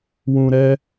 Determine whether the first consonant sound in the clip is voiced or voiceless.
voiced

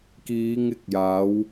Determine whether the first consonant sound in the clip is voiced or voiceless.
voiceless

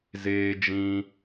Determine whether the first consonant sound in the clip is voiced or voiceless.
voiced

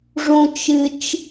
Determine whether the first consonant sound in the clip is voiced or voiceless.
voiced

